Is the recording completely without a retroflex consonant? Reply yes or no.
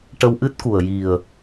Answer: no